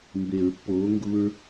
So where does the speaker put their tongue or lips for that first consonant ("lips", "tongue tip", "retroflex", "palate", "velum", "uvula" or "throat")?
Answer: lips